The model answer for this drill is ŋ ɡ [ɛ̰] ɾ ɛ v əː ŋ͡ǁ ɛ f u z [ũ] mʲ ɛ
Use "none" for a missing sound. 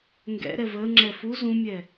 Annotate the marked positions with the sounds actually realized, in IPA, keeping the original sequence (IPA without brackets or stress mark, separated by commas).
ɛ̰, ũ